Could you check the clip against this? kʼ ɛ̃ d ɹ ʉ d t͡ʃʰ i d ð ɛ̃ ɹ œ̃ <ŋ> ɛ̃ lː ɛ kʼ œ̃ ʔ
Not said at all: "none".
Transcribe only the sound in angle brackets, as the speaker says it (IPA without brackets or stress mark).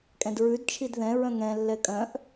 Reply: ŋ